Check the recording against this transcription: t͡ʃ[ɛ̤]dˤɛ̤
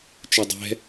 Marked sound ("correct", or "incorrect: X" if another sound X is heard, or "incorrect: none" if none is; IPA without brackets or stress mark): incorrect: ɛ